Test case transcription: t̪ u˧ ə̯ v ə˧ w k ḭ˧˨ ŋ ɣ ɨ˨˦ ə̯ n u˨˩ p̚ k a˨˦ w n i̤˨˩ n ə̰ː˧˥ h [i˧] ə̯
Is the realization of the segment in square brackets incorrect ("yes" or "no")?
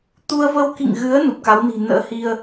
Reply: no